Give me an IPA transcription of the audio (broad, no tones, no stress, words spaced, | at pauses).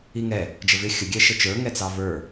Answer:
iŋɛ | d͡ʒəvɪ xʲə ɡʲɛʃət͡ʃə˞ ŋɛt͡sɑvə˞